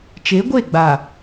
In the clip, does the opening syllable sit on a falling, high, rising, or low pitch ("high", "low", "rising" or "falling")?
rising